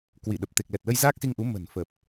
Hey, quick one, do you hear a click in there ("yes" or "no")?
no